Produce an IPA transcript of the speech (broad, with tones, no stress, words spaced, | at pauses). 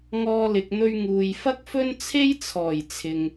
ŋɔː˥lɪ˧k̚n̪ɵ˥ɥ ŋuː˨jfɐ˥k̚fɵ˥n t͡sʰe˥jt͡sʰɔː˨˩j t͡sʰɪ˨ŋ